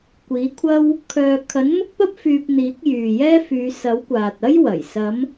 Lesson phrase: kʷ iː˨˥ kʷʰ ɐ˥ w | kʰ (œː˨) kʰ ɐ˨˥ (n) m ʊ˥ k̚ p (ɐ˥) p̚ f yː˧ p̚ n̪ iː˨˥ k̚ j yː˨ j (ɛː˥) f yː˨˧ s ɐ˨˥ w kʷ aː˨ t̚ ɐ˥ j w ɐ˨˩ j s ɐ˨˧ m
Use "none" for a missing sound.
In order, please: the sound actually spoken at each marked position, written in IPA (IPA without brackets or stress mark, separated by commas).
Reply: œː˨, n, ɐ˥, ɛː˥